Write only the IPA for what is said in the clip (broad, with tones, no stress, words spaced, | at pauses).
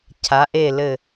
cʰa˩˧ʔe˧˩ lɘ˧˩